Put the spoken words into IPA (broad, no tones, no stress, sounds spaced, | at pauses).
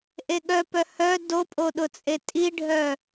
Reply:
ʔ e ɠ œ p œ h œ d o pʼ o ɗ ʊ t͡sʼ e tʼ i ɖʱ œ